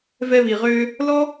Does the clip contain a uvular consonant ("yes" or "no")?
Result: yes